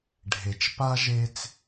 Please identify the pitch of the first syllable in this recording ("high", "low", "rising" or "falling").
low